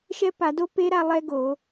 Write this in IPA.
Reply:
ʃ ɛ˦˥ p a˧˩˧ d o˦˥ p e˦˥ ɾ a˥˧ lˠ ɛ˦˥ ɡ o˧˩˧

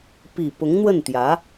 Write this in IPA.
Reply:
p i˨˩ p ʊ˧˥ ŋ n̪ w ə˥˩ n t̪ j ä˧˥

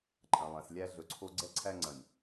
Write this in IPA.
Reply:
ǃʼ ɐ̃˨ lˠ æ̃˨ s lʲ æ˦ ɮ ɵ˨ ǀʰ o˦ ɡ͡ǀ ɛ˦ ǀʰ æ˦ ŋ͡ǀ ɐ̃˨ nʲ

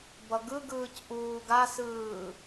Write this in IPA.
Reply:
b ʌ ɡ ɯ ɡ ɯː c ʔ uː ɡ a s ɯː

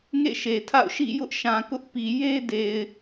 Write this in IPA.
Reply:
ŋ ḛ˦˨ ʃ e˨ tʰ a̰˦˨ ʊ̯ ʃ ḭ˦˨ j ʊ˦ ʔ ʃ ã˨ k ʊ˦ ʔ p i˨ j e˦ d e˨ ɪ̯

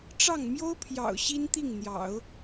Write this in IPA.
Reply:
ʈ͡ʂ ɑ˥˩ ŋ m j o˥ ʊ̯ pʰ j ɑ̰˨˩ ʊ̯ ɕ i˥ n t̪ i˥˩ ŋ n̪ j ɑ̰˨˩˦ ʊ̯

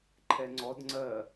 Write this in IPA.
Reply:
ǃʰ ɛ ŋ͡ǀ ɔ d ŋ͡ǀ ɜ

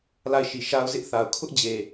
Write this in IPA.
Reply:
l a˦˨ ɪ̯ ʃ i˨ ʃ a˦ ʊ̯ z ɪ˦ ʔ θ a˨ ʊ̯ kʰ ʊ˦ ʔ d͡ʑ e˨

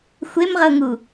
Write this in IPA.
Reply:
xʷ e m ʁ ɤ ŋ u

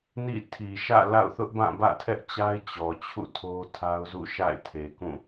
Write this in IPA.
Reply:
n ḭ˦˨ tʰ i˨ ʃ ä̰˦˨ l a̰˦˨ ʊ̯ θ ʊ˦ ʔ b ã˦˨ b ä̰˦˨ tʰ ɛ˦ ʔ t͡ɕ a˦ ɪ̯ t͡ɕ ɔ˨ t͡ɕʰ ṵ˦˨ tʰ o˦ tʰ a˦ ʊ̯ z ṵ˦˨ ʃ a̰˦˨ ɪ̯ tʰ e˨ k ũ˦˨

